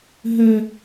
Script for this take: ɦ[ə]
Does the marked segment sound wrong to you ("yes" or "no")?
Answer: no